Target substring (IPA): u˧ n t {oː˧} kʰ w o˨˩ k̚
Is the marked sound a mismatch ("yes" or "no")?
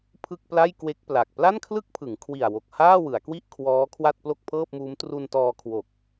yes